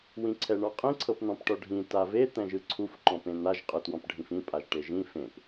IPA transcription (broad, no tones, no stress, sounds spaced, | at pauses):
w ĩ ǀʰ ɛ ɳ ɔ qʼ ĩ ǀʰ ɤ p n̪ ɔ̃ p ʈ ɔ ɖʱ ĩ t a v e t̪ ɛ̃ ʒ ɯ ǀʰ u f ǃ ɔ̃ p ẽ n̪ a ʒ qʼ ɯ t w ɔ̃ p ɖʱ ĩ f ĩ pʼ a ʒ ʈ e ʒ ĩ f ẽ p